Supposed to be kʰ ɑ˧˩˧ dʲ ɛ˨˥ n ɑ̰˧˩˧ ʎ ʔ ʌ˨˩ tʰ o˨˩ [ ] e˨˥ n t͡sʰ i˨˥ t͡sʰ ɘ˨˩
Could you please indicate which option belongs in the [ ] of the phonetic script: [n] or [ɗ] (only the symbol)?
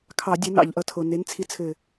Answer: n